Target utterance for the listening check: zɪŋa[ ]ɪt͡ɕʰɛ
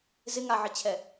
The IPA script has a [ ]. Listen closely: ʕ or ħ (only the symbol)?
ʕ